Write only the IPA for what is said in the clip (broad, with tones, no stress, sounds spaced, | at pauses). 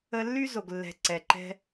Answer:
ə˧ lː y˦ z o˨ ɡ lː ɛ̤˨ ǀ ɛ˨ ǃ ɛ̤˧